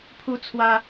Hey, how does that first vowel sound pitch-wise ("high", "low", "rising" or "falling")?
high